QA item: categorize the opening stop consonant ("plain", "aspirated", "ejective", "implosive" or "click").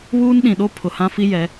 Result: implosive